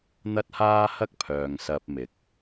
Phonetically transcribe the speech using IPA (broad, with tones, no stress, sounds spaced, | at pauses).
n̪ ɐ˥ t̚ h aː˥ h ɐ˥ k̚ pʰ œː˨ ŋ s ɐ˧ p̚ m ɪ˨˥ k̚